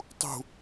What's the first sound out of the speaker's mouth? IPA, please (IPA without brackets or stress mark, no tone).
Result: tˤ